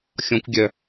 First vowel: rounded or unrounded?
rounded